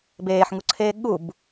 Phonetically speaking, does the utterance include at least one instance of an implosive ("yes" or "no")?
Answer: yes